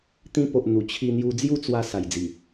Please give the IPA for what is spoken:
t̪ĩ˧po˨ʔ n̪u˨˩ t͡ɕʰi˧n̪ju˧ d͡zju˥˧t͡swa˧ sa˨˩jd͡zi˨˩

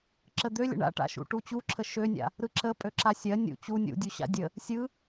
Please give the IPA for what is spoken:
ǁəd̪ølʲə̰ ɳa̰ʈa̰ʃṵ ʈut͡ɕuǁʰə ʃønʲa̰ | ɾɯǁə pʼøǁasʲɜ nʲṵ t͡ɕu nʲṵdʲuɕa̰ dʲə | sʲɯ

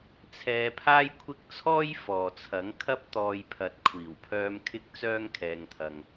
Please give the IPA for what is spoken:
t͡sʰɛː˧pʰaː˥jkʷʰɪ˥k̚ t͡sʰɔː˥jfɔː˨t͡sʰɐ˨˥ŋ kʰɐ˥p̚t̪ɔː˧j pʰɐ˨t̚kʷʰiː˨˩wpʰœː˧m kʰɪ˥k̚t͡sœː˥ŋkʰɛː˧ŋt̪ʰɐ˧ŋ

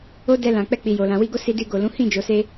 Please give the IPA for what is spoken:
o˧ dɛ˧lã˨ k͡pɛ˧k͡pi˨jo˨lã˨ wi˧ɡo˦ si˧di˧ɡo˨ lũ˨˦ hĩ˦˨d͡ʒo˨se˧

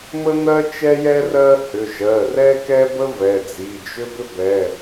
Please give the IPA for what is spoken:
mə˥n̪ɜ˥ t͡ʃɛ˥jɛ˥ rɜ˥ hʏ˩˧˩ʒɜ˩˧˩rɛ˥kɛ˥ bə˥ vɛ˩˧˩d͡zi˩˧˩d͡ʒʏ˥ bʏ˥bɛ˩˧˩

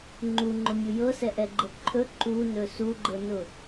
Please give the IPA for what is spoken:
ŋ͡ǃuŋ͡ǃʊmʲu jɤsɛʔɛɡ͡ǃɤ ǃʰɵ ǃunɵ suɡ͡ǃɤnʊ

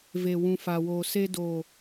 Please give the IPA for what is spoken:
ve˨wũ˨fa˨woː˨ se˧do˨

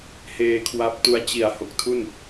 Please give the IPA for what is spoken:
heː˧kʰwa˦˥p̚tu˦˥a̯ t͡ɕi˩˦a̯ ho˨˩k̚tʰu˥˩n

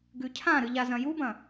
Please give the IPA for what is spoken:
ɡʉcʰãɾɨ ʎazɐ̃jubɐ̃

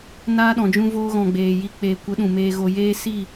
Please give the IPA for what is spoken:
naː˦ɗɔ̃˨ d͡ʒũ˧voː˧ɣɔ̃˨ ɡ͡beː˨ ji˧ k͡peː˨ kʷə˨˦ ɗũ˨ meː˨ɣo˨jeː˧ si˦˨

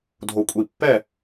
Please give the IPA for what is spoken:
dʱo˨kʷʼi˨pːɛ˦˨

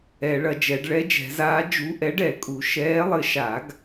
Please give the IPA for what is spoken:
ɛ˨˩˦ɭɐ˨˩˦d͡ʒɛ˨˩˦ɖ ɭɛ˨˥d͡ʒɛ̤˨˩˦zaː˨˥ d͡ʒu˨˥ʔɛ˨˥ɖ ɛ˨˩˦kʼu˨˩˦ ʃɛː˨˥lˠɘ˨˥ ʃa˨˩˦ɡ

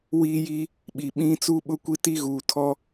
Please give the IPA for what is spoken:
wiː˦ji˦ | ɓi˨ɓĩ˦ t͡suː˦ɓʊ˦kʷi˦ ti˦ɣuː˨tʰɔ˦

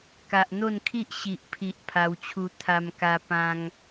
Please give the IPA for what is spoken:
ka˨ʔn̪o˥˧nkʰi˦ʔ ɕi˨ʔpʰi˨ʔ pʰa˧wt͡ɕʰu˧ t̪ʰa˧mka˧ pã˧ŋ

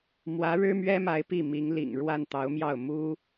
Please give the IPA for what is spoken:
mwä˧˥ɻɻ̩˥mɥɛ˥ma˧˥ɪ̯ pi˥˩mi˧˥ŋlḭ˨˩ŋɻwa˥˩n t̪ɑ˧˥ʊ̯mjɑ˥˩ʊ̯ mu˥

